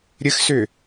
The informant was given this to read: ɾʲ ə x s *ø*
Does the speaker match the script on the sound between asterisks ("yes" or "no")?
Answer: yes